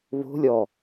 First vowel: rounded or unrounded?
rounded